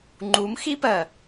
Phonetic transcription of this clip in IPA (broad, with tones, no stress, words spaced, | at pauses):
ŋ͡ǃu˨˦m xi˦pɜ˨